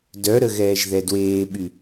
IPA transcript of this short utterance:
d œ ɾ ə ɣ ɛː ʒ ð ɛ d w eː ɓ y

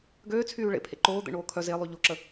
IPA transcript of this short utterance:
ɡ øː t͡sʰ yː ɭ ḛ pʰ ḛ ǃ oː d̪ ḛ ɳ oː kʰ œ z e lˠ y ʎ o ǁ ə

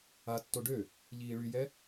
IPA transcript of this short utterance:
a tː o ɖ ø | ʎ iː ɭ y j ɛ

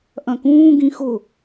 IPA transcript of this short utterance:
ʔ ɐ̃ k ũː ɡ ĩ x ʊ

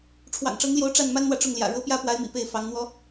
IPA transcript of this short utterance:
ʈ͡ʂʰ w ɑ̰˨˩ ŋ ʈ͡ʂ ɤ˧˥ ŋ l j o˧˥ ʊ̯ ʈ͡ʂ a˥˩ n m a˥ n n̪ w ä˨ ʈ͡ʂ ʊ˥˩ ŋ l j ä̰˨˩ ɻ ɤ˥ p j ä˥˩ p w a˧˥ ɪ̯ m ḭ˨˩ p e˥˩ ɪ̯ f ɑ˧˥ ŋ n̪ w ɔ˥

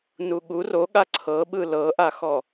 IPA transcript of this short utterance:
n u ɠ u r o ɠ a ǀʰ ɤ ɓ ɯ l ɤ ʔ a x ɔ

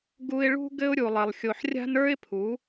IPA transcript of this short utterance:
ɡ u˧ ɪ̯ ɭ ṳ˦ ɡ ɘ˦ ʊ̯ ɾʲ u˧ lˠ ɘ˧ lˠ xʲ o˧ ħ rʲ a̤˦ n ə˞˦ ɪ̯ pʰ u˨˦

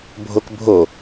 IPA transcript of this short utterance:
bʱ o k bʱ o

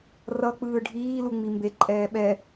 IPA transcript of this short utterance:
r ʌ k͡p ɯː ɖʱ iː l u ŋ͡m i m b e ǃʼ ɛː ɓ ɛ

